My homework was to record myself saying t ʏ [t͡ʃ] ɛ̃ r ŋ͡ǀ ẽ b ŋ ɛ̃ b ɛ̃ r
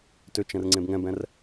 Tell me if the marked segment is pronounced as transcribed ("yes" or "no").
yes